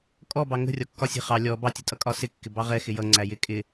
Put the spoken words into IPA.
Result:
kʼ ɔ b ɑ ŋ ə̤ rʲ ɒ kː ɒ sʲ ɛ̤ χ ɑ lʲ ɔ b ɑ tʲ ʊ tʼ ʌ kʼ ɒ s ɪ kː ɪ b ɑ ʁ ɛ x ɪ j ʌ ŋ͡ǀ æ j ɪ kʼ ɪ

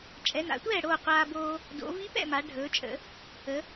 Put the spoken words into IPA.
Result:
t͡ʃʼ ɛ˩˧ n a̰˩˧ tʷ ɛː˥˩ ɽ oː˥˩ qʷ aː˧ b oː˧ | d o̰˩˧ v i˧˥ p ɛ̰˥˩ m a˩˧ ɖʱ ɵː˩˧ t͡ʃʼ ə̰˩˧ | ə˩˧

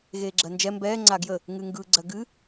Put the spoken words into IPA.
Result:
ɣ eː ɡ͡ǁ ɜ n d͡ʒ ɛ m b ɛː ŋ͡ǀ a ɡ j ə | ŋ ɨ ŋ ɡ ɯ ɡ͡ǀ ɜ ɡ ɨ

